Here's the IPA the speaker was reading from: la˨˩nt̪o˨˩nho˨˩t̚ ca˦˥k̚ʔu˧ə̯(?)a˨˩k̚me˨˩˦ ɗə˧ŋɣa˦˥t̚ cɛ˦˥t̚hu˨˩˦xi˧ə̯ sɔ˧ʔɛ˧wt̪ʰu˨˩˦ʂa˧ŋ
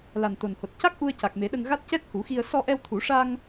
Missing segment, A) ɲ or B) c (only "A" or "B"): B